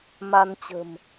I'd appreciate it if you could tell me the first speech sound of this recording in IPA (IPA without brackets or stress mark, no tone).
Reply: m